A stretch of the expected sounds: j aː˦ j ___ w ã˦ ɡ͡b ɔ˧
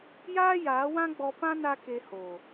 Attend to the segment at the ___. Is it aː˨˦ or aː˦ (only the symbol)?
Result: aː˨˦